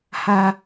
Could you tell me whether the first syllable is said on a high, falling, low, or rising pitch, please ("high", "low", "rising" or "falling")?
low